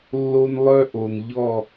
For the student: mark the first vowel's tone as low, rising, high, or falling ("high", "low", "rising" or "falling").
high